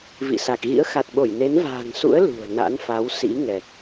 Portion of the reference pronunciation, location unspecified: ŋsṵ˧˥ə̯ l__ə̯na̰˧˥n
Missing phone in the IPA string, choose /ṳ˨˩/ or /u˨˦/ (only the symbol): ṳ˨˩